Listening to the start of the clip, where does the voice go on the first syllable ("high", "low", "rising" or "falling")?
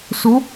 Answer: rising